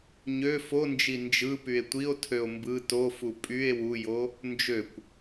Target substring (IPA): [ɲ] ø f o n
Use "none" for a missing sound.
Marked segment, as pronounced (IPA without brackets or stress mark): ɲ